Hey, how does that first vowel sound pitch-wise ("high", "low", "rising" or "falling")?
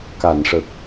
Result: low